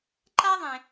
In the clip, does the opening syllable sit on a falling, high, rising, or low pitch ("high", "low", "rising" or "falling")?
high